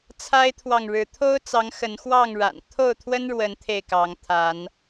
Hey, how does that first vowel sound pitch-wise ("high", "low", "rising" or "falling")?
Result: high